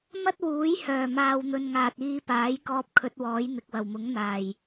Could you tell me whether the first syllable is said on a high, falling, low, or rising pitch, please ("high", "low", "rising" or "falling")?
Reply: high